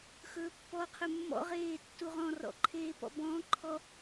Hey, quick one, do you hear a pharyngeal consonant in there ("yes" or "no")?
no